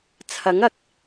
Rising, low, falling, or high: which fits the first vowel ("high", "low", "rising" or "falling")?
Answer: rising